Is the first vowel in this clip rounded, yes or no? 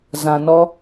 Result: no